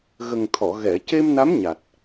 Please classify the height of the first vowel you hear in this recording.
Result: mid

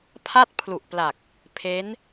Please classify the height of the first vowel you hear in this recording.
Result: low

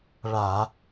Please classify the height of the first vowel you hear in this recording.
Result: low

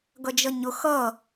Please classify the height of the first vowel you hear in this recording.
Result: mid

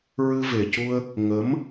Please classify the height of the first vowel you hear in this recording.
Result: high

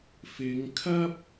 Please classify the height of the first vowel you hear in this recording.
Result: high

